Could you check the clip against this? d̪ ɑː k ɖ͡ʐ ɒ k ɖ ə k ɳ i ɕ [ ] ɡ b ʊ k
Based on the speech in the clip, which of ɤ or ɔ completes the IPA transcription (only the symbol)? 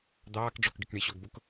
ɔ